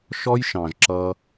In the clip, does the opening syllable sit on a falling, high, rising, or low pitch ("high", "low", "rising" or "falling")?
high